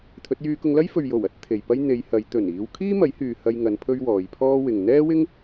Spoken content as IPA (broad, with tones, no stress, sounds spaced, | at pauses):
t̪ʰ ɵ˨˥ t̚ j yː˧ k ʊ˧ ŋ l ɐ˥ j f ɵ˨ ɥ j o˨˩ w ɐ˨˥ t̚ t̪ʰ e˨ j p ɐ˥ j n̪ e˨˧ j h ɐ˨˧ j t̪ ɵ˨˩ n iː˨˧ w kʰ iː˥ m ɐ˨˥ j h yː˨ h ɐ˧ j ŋ ɐ˨˧ n pʰ ɵ˥ ɥ w ɔː˨˧ j pʰ ɔː˥ w ɪ˨ ŋ n̪ ɛː˥ w ɪ˥ ŋ